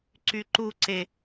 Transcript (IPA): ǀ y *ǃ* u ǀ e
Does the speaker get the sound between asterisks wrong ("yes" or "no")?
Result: no